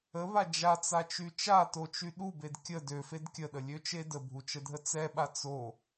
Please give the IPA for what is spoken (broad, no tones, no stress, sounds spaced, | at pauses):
ə β a d͡ʒ a t͡s a t͡ʃ y t͡ʃ a t o t͡ʃ y ɗ u b e d kʲ ə d ø f e d kʲ ə ɗ ə lʲ ø t͡ʃ e d ə bʱ u t͡ʃ ə dʱ ə t͡s ɛ ɓ a t͡s o